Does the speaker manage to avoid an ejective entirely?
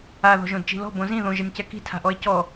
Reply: yes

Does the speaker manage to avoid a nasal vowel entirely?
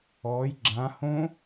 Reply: no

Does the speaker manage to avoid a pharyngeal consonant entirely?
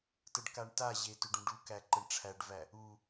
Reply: yes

